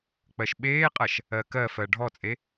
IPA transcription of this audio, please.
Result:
k͡p ɜ ʃ ɓ eː qʼ ɐ ʃ | ɜ k ɜ f ɜ ɖʱ ɔ t͡sʼ e

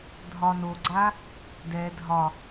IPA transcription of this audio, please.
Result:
dʱ ɒ n o ɡ͡ǀ a | d ɛ dʱ ɒ

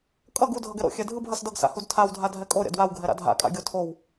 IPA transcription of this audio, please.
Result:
kʼ ʌ ɡ u dʱ ʌ ɡ ɛ ɾ o̰ xʲ ɛ dʱ ɯ b ɦ ʌ s d ʌ ɡ s a̰ h u d tʰ a w dʱ a dʱ ɛ kʼ o ɾʲ a̰ d w a w ɡʱ ɛ ɾ a̰ dʱ a̰ kʼ a̰ ɡʲ o tʰ o w

